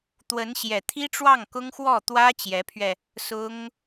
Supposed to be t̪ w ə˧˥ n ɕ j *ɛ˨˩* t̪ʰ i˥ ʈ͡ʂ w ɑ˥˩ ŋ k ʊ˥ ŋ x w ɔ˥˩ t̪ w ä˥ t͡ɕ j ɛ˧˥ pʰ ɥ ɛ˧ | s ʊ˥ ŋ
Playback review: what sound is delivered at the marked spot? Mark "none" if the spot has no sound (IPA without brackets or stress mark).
ɛ˨˩